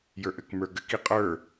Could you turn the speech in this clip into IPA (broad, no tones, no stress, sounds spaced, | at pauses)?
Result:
j ə˞ ʔ ɘ k m ə˞ ɡ ɘ k i qʼ ə˞